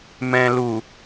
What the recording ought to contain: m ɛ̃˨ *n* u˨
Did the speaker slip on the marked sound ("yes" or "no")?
yes